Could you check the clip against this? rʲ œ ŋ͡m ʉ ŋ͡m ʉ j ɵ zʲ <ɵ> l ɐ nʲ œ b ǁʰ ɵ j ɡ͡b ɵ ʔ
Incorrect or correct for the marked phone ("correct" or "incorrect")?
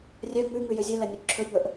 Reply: correct